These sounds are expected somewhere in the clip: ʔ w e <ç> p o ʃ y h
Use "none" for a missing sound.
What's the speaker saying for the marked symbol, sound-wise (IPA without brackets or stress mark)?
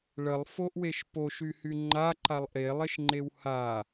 ʃ